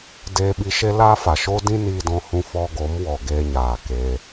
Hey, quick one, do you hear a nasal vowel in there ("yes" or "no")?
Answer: yes